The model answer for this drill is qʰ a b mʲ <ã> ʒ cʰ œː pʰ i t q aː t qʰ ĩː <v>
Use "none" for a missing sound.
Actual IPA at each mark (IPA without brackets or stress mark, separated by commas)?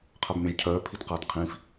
ã, f